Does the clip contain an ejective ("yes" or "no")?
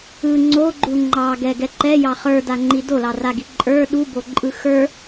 yes